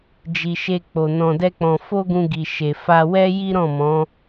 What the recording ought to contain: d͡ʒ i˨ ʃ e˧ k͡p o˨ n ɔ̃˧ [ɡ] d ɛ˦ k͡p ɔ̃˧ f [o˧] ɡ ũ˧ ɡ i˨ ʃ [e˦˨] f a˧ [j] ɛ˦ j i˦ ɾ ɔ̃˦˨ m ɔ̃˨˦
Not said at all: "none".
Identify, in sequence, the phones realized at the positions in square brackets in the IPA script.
none, o˦, e˨, w

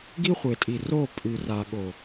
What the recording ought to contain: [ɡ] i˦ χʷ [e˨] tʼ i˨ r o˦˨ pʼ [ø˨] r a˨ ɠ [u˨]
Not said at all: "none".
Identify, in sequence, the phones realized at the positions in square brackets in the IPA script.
ɡ, e˨, ʉ˨, o˨

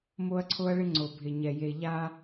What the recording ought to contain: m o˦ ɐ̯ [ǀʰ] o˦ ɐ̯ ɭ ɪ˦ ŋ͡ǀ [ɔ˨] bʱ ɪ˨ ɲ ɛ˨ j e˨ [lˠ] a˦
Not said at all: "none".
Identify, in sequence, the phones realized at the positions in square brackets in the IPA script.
ǀʰ, o˨, ʎ

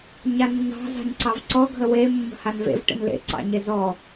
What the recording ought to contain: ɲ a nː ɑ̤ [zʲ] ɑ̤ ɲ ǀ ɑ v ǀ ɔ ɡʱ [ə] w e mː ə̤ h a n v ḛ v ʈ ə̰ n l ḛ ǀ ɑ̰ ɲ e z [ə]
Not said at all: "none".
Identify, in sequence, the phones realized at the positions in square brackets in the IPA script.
z, ə, ɔ

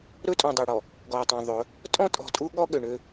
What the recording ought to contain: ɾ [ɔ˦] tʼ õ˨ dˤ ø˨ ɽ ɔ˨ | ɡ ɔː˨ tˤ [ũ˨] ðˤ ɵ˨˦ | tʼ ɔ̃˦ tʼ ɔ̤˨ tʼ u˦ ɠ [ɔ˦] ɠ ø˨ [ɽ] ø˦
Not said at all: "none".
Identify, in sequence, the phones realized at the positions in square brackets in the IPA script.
ɵ˦, õ˨, ɔ˦, ɳ

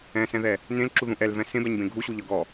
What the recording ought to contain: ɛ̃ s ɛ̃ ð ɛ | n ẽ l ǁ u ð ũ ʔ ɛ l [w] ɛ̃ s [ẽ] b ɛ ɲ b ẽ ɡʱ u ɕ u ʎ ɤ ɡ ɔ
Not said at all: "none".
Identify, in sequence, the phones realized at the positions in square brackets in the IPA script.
v, ẽ

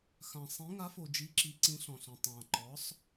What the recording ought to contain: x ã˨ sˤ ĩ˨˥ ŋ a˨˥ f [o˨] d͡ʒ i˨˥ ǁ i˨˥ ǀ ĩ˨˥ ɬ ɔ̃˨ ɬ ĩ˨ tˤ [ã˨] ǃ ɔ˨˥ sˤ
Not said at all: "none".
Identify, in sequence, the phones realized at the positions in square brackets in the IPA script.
o˨, ã˨

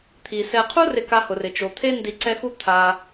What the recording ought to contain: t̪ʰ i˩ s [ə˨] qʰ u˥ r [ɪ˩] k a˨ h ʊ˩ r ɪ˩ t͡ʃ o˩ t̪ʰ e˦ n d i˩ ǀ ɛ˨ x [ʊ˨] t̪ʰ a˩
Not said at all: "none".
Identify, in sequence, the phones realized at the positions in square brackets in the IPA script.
ɛ˨, ɪ˨, u˨

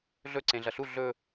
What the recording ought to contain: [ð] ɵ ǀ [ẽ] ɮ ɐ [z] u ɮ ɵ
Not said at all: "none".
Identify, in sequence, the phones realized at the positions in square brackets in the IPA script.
ɮ, ẽ, ɬ

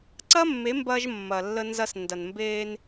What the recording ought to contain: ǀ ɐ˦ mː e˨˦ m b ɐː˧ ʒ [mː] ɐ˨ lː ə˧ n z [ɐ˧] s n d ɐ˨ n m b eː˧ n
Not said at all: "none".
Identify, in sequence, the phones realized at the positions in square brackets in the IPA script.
mː, ɐ˧

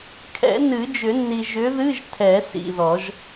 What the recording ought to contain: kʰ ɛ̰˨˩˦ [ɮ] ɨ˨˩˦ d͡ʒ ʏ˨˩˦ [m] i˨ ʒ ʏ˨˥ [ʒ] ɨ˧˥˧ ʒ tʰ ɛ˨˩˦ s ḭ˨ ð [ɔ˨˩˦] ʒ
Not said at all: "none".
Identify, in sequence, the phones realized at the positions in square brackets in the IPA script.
n, nː, ð, ɔ˨˩˦

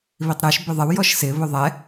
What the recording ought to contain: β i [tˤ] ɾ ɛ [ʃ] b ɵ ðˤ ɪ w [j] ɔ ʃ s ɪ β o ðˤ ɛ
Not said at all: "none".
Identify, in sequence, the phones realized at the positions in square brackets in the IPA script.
tˤ, ʃ, j

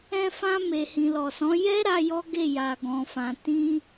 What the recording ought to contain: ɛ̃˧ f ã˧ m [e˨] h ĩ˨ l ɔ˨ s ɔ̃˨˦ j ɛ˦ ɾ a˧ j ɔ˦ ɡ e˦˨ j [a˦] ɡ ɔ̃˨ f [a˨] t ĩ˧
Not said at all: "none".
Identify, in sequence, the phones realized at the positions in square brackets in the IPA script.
e˨, a˨, ã˨

